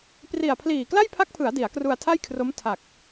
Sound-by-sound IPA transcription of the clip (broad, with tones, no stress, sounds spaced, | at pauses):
p r i˨˩ a̯ pʰ l iː˨˩ k l a˥˩ j pʰ a˦˥ k̚ pʰ ɯ˩˦ a̯ d i˩˦ a̯ k r u˧ a̯ tʰ a˥˩ j kʰ r o˦˥ m tʰ a˨˩ k̚